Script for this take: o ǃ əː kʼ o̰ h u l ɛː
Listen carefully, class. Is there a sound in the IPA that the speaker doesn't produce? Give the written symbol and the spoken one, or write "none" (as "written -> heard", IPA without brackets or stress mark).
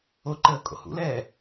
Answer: u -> ṵ